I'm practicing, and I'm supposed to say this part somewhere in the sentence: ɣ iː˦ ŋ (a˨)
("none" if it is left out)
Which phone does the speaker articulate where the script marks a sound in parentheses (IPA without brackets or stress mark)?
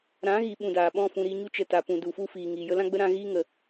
ə˨